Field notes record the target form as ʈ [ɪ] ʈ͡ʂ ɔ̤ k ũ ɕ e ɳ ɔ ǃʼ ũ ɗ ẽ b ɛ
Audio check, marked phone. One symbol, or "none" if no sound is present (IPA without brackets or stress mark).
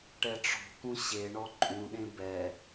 ɛ